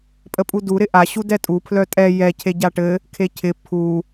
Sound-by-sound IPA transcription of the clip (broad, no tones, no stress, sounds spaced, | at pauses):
pʼ ə pʼ u d u ɾ ɪ ʔ a ɕ u d ɛ tʼ u pʰ l œ tʼ ɛ j ɛ cʰ e ɟ a ʈ ɘ | kʰ e cʰ ɪ pʰ u